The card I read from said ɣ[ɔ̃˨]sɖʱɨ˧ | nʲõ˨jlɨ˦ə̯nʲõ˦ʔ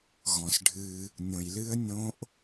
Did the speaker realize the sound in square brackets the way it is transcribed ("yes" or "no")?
yes